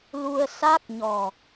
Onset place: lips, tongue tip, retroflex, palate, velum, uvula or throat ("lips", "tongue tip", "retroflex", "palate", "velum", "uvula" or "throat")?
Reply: tongue tip